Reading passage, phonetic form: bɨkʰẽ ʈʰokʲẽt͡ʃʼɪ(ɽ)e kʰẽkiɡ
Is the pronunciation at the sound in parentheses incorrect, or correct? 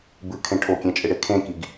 correct